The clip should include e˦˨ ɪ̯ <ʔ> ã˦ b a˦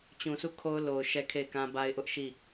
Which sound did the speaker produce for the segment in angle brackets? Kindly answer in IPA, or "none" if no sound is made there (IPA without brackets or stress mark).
k